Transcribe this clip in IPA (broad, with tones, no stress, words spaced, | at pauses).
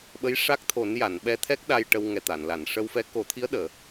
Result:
ɓə˧˥jʂa˦˥k̚t̪ʰo˨˩˦n ja˨˩˨nɓɛ˧t̪ʰɛ˦˥k̚ ɗa˧jʈə˧w ŋɛ˨˩ t̪a˨˩˨nla˨˩˨n ʂə˧wfɛ˧˥ ko˨˩˦t̪ʰi˧˥ə̯ ɗəː˨˩˨